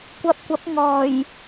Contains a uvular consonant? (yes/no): no